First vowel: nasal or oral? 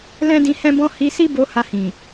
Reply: nasal